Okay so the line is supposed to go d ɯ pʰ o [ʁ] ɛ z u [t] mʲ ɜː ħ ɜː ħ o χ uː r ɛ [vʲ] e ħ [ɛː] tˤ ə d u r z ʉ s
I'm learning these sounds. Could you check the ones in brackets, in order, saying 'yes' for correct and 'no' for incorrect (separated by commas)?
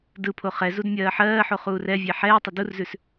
no, no, yes, yes